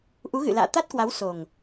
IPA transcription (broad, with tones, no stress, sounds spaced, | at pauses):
ʔ u˨˦ ɣ ɨ̰˧˨ l a̰ː˧˨ t̪ a˦˥ t̚ k w a˨˦ w s o˨˩ ŋ